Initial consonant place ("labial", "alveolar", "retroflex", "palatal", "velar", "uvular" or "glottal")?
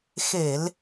velar